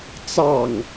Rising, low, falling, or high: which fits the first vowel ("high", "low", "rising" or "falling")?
low